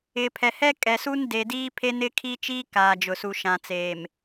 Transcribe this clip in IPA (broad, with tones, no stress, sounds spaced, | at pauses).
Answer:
ɪ˨ pʰ ɛ˨ h ɛ˦ kʼ ɛ˨ s uː˦ n d e˨ d iː˦ pʰ e˦ n ɪ˦ kʰ i˦ t͡ʃ iː˦ k aː˨ d͡ʒ ʊ˨ s u˨ ʃ ã˨ t͡s eː˨ m